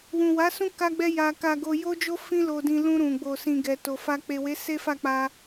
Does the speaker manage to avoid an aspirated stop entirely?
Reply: yes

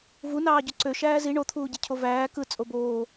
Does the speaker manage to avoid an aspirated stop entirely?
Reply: no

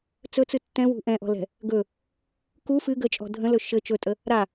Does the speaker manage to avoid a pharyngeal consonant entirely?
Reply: yes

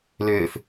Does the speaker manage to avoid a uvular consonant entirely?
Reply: yes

